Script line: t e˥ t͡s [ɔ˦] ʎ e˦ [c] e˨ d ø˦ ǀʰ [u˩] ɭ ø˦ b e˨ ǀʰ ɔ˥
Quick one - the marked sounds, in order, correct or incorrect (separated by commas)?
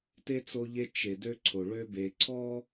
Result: incorrect, incorrect, incorrect